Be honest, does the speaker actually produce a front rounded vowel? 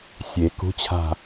no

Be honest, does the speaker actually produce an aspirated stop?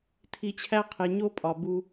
yes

